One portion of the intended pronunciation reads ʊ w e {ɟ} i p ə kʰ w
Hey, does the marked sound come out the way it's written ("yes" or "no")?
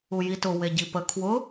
yes